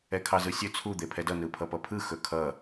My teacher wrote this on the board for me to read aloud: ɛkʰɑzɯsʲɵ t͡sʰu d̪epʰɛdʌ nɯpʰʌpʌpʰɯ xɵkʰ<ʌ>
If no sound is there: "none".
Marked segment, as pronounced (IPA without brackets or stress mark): ʌ